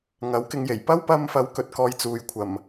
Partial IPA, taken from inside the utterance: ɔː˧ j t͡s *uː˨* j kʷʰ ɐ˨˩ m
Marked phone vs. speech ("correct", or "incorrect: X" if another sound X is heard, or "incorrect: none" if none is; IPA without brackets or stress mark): correct